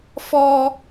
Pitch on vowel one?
high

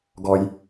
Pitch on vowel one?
high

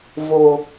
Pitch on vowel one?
low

